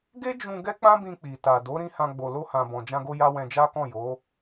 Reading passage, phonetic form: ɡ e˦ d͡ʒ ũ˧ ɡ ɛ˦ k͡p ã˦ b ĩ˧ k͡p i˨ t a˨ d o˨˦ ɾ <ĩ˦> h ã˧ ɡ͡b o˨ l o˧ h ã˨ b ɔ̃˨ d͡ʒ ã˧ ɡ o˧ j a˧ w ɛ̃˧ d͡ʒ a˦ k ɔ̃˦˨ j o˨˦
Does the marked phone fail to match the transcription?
no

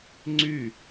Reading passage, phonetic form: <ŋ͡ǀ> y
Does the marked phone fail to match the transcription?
no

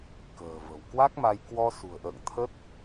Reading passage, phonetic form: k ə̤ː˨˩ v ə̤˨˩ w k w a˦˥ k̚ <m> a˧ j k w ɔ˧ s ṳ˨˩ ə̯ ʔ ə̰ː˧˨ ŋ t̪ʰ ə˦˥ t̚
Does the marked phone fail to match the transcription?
no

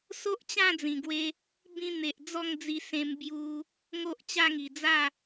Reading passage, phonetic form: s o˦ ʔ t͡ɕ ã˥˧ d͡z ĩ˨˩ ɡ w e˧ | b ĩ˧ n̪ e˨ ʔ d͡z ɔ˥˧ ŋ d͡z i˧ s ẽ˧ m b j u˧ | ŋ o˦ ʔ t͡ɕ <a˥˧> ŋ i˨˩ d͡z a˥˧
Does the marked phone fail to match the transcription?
no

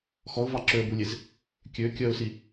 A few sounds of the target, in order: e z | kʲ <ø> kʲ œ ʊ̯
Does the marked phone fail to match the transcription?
no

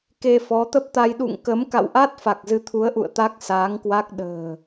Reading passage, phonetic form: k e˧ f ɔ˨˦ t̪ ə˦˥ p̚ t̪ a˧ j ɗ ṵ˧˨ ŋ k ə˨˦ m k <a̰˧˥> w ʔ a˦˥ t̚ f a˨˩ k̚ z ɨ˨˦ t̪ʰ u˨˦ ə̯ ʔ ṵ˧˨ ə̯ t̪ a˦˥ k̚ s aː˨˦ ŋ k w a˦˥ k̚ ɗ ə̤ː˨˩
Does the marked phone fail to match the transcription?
yes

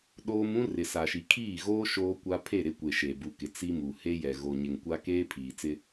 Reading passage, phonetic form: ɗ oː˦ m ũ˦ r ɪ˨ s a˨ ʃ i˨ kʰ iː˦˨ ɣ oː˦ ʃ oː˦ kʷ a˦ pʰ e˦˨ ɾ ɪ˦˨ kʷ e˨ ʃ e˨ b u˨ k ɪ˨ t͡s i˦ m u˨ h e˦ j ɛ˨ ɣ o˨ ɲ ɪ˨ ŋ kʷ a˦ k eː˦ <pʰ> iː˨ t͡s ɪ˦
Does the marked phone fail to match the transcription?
no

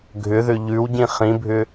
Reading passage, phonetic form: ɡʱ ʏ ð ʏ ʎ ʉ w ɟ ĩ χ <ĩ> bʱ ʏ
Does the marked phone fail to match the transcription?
no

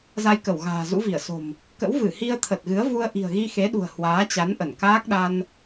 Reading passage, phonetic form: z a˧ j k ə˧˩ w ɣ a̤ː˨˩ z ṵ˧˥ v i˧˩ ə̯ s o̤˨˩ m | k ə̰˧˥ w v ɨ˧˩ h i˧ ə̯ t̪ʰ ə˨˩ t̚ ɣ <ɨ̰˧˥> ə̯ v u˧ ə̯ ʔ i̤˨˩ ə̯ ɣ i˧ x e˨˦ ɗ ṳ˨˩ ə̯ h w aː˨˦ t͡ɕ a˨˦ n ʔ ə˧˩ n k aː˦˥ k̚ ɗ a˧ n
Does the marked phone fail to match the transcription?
yes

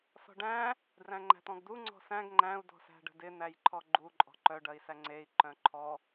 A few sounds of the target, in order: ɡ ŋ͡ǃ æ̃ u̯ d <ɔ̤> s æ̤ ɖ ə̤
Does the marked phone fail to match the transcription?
no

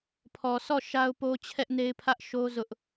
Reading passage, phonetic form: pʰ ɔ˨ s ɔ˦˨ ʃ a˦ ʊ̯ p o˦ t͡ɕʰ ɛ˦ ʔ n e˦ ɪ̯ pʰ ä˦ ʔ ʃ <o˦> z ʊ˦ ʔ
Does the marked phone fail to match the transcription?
no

